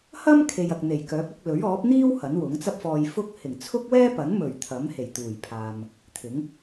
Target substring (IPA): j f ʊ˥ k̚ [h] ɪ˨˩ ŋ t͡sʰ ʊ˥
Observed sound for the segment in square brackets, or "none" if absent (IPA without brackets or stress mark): h